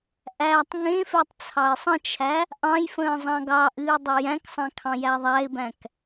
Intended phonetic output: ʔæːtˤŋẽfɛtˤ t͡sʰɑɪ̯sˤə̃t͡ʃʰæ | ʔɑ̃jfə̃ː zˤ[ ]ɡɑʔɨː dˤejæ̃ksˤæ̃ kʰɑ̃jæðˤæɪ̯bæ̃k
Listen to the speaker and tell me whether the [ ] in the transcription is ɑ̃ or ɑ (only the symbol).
ɑ̃